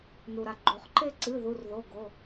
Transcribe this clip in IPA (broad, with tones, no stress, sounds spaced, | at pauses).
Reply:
n u˩ ɾ a˩ ɡ͡ǃ o˩ χ ǃ e˦˨ ǀ ɨ˩˧˩ ð u˩˧˩ r ð o˩˧˩ ɡ o˩˧˩